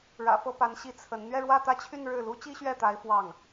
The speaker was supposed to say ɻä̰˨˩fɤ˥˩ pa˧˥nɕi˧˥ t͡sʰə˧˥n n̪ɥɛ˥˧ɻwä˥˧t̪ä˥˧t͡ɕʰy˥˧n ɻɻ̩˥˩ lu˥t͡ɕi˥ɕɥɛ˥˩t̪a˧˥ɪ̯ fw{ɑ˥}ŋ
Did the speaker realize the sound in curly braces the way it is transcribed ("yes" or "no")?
no